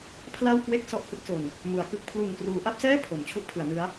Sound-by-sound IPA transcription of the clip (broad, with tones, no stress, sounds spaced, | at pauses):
pʰ l a˥˩ w k w e˥˩ k̚ s ɔ˥˩ ʔ h ɯ˥˩ k̚ s o˨˩ n | m u˩˦ a̯ k ɯ˥˩ k̚ pʰ l u˨˩ n k r uː˩˦ ʔ a˥˩ p̚ s ɛː˥˩ pʰ o˩˦ m t͡ɕʰ u˥˩ ʔ pʰ ɯ˩˦ a̯ n ɯ˦˥ a̯